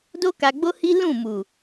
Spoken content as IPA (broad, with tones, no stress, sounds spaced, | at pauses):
d o˦ k a˧ ɡ͡b o˦ h i˦ l ũ˦˨ m u˨